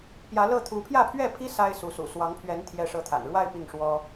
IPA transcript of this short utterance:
p j ä˧˥ l ɤ˥˩ t̪ʰ u˧˥ pʰ j ä˥˧ pʰ ɥ ɛ˥˩ pʰ i˥ s a˥ ɪ̯ s u˧˥ s ṵ˨˩ s w ɑ˧˥ ŋ pʰ ɥ ɛ˧˥ n t̪ʰ j ɛ˥ ʂ ɤ˥˩ t̪ʰ a̰˨˩ n ɻ w a˥˧ ɪ̯ p i˥˩ ŋ ʂ w ɔ˥

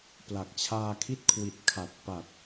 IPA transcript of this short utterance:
p l a˨˩ k̚ t͡ɕʰ aː˧ kʰ i˦˥ t̚ kʰ w i˨˩ t̚ kʰ a˨˩ t̚ p a˨˩ t̚

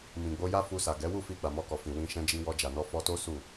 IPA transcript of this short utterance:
m ĩ˨ ɡ͡b o˧ j a˦ f u˧ s a˨ ɡ ɛ˨˦ w u˦˨ f i˧ ɡ͡b a˨ m ɔ˧ k ɔ˨ f ĩ˨ w ĩ˧ ʃ ɛ̃˧ d͡ʒ i˧ w ɔ˧ d͡ʒ a˨ n ɔ˧ f ɔ˧ t o˦ s u˦˨

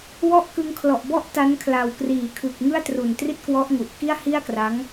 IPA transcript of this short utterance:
w ɔ˥˩ ʔ k ɯ˧ ŋ kʰ l ɔ˨˩ ʔ b ɔ˥˩ ʔ t a˦˥ n kʰ l a˨˩ w k r iː˩˦ kʰ ɯ˨˩ k̚ ŋ ɯ˥˩ a̯ t r u˨˩ n t r i˥˩ t̚ k w ɔ˦˥ ʔ ŋ u˨˩ ʔ k i˥˩ a̯ h i˥˩ a̯ k r a˦˥ ŋ

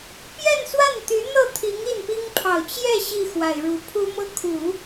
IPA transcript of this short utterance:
p j ɛ˥˧ n s w a˥˩ n t̪ y˧˥ n̪ ɤ˥˩ t̪ʰ i˧˥ ŋ i˥˩ n p i˥ ŋ pʰ ɑ˨˩ ʊ̯ t͡ɕ j ɛ˥˧ ɕ i˥˩ x w a˨˩ ɪ̯ ɻ u˧˥ pʰ u˥ m ɤ˥ kʰ u˨˩˦

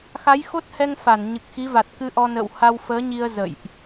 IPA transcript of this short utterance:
x a˨˦ j x o˦˥ t̚ h ɛ˧ ŋ f a˧˩ n ɲ ɨ˨˩ k̚ x i˨˦ v a˨˩ t̚ k ɨ˧ ʔ ɔ˧ n ə̰ː˧˨ w h a˧ w f əː˨˦ ɲ i˧ ə̯ z ə̰˧˨ j ʔ

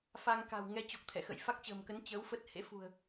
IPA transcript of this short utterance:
f a˧ ŋ k a̤˨˩ w ŋ ɛ˧ t͡ɕ o˨˩ k̚ t̪ʰ ɛ̰˧˨ x ə̰˧˨ j f a˦˥ k̚ t͡ɕ ə̤ː˨˩ m k ə˨˦ n t͡ɕ əː˨˦ w f ə˦˥ t̚ h ḛ˧˥ f ṳ˨˩ ə̯

